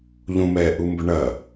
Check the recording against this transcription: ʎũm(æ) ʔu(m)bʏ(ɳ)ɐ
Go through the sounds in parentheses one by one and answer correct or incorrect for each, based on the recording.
incorrect, correct, correct

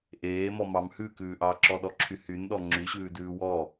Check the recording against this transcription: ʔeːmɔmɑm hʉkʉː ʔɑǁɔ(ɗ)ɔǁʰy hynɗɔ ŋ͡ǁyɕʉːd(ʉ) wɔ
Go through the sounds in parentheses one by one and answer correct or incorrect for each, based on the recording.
correct, incorrect

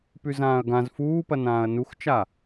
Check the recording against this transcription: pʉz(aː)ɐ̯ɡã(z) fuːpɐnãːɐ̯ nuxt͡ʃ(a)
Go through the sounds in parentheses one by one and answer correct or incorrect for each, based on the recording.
incorrect, correct, correct

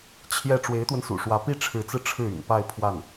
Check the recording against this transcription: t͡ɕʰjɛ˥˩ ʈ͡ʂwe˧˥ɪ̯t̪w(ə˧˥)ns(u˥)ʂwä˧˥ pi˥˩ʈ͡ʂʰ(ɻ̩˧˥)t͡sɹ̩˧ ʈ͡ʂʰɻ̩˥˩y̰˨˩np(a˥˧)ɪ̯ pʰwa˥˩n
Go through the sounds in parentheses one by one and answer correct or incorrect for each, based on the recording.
incorrect, incorrect, correct, correct

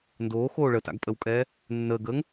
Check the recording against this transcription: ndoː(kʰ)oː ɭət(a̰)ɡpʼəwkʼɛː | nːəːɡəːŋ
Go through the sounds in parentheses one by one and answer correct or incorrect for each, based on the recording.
incorrect, correct

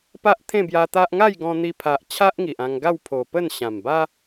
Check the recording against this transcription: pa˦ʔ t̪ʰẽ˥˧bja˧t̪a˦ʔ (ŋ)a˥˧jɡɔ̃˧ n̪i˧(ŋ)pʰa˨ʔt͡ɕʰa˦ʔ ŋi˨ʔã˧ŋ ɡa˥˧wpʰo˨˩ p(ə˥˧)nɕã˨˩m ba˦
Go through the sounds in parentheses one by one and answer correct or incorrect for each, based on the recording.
correct, incorrect, correct

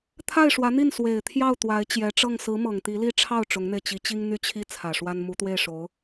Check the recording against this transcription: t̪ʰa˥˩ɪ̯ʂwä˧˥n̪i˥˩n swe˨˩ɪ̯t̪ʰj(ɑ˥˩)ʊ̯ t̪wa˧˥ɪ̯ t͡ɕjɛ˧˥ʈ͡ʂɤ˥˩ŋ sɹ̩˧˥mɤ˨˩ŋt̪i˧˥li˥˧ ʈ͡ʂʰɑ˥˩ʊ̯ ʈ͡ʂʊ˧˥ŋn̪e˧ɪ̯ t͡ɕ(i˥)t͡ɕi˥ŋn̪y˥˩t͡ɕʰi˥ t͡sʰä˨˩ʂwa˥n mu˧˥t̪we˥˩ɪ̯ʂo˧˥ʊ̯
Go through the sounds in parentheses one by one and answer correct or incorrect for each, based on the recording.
correct, incorrect

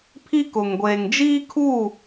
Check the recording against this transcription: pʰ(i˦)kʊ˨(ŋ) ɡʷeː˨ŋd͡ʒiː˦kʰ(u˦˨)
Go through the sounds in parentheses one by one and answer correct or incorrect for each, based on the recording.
correct, correct, correct

